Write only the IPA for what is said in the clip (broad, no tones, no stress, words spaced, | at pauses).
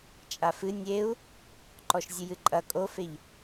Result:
t͡ʃʼafɨ nʲeu̯ | ǃɔʃzʲɨjɨǃʼɐ kʼofeʎ